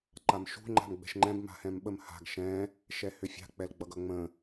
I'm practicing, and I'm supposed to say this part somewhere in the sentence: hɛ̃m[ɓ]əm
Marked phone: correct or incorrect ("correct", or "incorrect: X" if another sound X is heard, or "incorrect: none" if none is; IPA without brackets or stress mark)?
correct